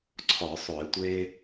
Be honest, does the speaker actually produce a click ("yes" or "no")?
yes